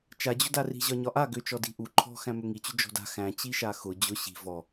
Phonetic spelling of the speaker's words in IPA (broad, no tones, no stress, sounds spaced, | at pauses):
t͡ʃ a d͡ʑ ʊ d a r i̤ ʑ ɒ ɲ ɒ ʔ a ɡ ʏ t͡ʃ ɔ d i̤ ʔ u ǃʰ ɔ̤ x æ̃ m ʏ ŋ i t͡ɕ ʏ d͡ʒ ɔ̤ d a̤ x æ̃ t͡ɕ i ʃ a x ʊ d͡ʑ ʊ ɕ i̤ v ɔ